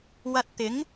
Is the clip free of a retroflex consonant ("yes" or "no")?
yes